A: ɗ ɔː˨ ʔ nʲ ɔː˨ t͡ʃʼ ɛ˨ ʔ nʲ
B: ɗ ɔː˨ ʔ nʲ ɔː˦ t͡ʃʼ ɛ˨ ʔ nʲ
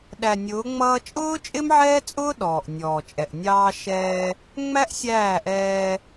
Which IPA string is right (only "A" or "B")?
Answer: A